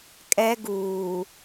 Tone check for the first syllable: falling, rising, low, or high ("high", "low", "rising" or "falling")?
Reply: high